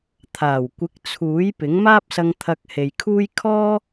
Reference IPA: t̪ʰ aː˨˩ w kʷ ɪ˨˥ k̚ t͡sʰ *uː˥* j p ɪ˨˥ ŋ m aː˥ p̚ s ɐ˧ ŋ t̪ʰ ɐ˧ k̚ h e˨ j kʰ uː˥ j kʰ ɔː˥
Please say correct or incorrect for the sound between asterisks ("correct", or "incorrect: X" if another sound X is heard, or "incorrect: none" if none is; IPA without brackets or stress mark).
incorrect: uː˨˥